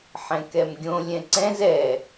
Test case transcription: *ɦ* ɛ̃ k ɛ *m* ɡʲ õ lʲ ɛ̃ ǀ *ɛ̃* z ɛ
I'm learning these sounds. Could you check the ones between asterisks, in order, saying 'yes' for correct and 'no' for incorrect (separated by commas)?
no, yes, yes